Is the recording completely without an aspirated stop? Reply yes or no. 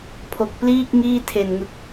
no